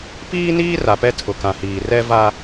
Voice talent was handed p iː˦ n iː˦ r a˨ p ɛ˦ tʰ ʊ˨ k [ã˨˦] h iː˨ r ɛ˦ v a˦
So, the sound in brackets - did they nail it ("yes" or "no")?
no